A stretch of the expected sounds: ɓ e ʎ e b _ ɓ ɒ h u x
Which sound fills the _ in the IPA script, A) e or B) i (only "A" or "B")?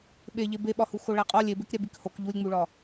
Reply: A